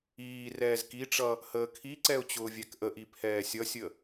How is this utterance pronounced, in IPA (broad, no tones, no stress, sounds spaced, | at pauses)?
iː r ɛː z k i ʈ͡ʂ ʌ | h əː kʰ i ǀ ɛ ʊ̯ t͡ɕ ʊː vʲ æ k ʔ ə ʔ i pʰ ɛː sʲ ʌ sʲ ə